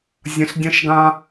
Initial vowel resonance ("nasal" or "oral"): nasal